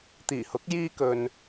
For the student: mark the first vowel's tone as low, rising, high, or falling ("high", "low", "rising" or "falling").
low